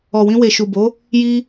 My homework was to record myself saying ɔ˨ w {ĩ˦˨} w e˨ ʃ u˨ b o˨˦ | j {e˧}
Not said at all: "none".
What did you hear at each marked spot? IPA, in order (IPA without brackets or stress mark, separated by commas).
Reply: ĩ˧, i˧